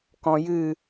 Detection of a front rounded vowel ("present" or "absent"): absent